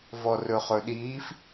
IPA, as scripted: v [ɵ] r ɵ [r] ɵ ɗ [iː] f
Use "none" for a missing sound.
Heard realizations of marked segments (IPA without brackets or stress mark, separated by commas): ɔ, χ, iː